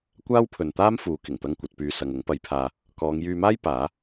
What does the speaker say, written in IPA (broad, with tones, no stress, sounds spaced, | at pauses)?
kʷ aː˥ w pʰ ɵ˨ n t̪ aː˥ m f uː˨˧ k ɪ˨˩ ŋ t̪ ɐ˥ ŋ kʷ ɐ˨˥ t̚ p yː˧ s ɐ˨ ŋ ʊ˨˥ ŋ p ɐ˨˥ j pʰ aː˨ | k ɔː˨˧ ŋ j yː˧ m aː˥ j p aː˨˥